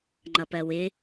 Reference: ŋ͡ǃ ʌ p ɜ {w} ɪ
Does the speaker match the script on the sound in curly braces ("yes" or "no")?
yes